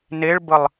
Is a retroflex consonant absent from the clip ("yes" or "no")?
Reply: no